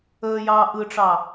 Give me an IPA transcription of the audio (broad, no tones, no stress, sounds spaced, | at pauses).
əː j ɑː ʔ ɯ ʈ͡ʂ ɑ